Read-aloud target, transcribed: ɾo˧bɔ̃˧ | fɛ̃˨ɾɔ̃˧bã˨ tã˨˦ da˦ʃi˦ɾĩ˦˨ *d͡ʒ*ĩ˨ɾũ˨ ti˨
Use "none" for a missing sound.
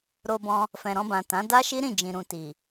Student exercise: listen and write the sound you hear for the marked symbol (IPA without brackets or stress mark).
d͡ʒ